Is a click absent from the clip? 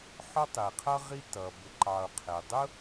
no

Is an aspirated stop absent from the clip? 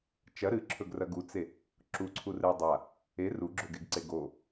no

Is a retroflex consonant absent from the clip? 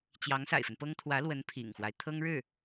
no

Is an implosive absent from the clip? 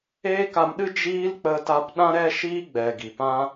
no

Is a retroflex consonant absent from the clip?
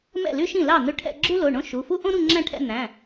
no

